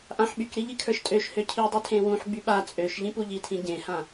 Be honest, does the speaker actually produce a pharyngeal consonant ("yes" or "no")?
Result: yes